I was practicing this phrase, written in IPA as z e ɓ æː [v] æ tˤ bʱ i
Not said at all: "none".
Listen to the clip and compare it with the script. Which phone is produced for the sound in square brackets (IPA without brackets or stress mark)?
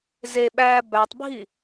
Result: b